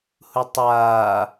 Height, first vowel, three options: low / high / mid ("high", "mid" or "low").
high